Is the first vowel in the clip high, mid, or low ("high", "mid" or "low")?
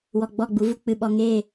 mid